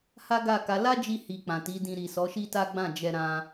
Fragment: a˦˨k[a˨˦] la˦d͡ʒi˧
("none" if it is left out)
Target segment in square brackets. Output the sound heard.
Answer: a˨˦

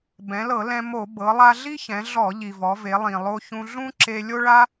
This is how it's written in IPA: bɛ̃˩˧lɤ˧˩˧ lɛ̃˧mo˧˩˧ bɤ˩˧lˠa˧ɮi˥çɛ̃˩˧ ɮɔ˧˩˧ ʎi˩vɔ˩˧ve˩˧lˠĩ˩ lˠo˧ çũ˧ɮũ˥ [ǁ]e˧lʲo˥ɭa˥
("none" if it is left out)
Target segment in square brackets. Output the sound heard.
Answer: ǁ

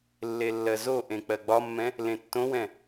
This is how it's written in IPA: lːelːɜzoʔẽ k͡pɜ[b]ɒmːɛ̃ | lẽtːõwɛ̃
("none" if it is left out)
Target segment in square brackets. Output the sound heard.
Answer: ɡ͡b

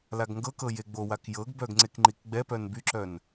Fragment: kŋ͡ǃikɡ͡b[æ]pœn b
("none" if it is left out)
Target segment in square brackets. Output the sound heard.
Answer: ɛ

